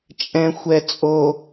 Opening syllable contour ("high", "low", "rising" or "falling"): low